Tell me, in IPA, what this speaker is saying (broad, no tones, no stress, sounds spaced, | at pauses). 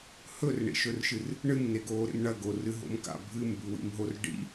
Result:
h ɵ r ɳ ḭ ʃ ɵ r ʃ ɨ r | ɳ ɨ m n e ɡ oː ɾ ḛ m ɳ ɐ ɡ o r ɨ ɦ o̰ m k a̰ bʱ ɨ m b ʉ w ḭ m ɦ o r ɖ ḭ